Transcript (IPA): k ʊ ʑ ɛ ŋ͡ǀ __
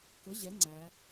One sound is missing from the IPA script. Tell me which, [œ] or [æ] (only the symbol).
æ